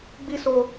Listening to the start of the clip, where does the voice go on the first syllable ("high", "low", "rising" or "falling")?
high